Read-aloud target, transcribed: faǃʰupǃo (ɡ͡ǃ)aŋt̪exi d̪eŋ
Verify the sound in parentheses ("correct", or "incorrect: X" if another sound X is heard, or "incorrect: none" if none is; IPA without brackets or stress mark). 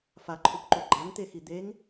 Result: correct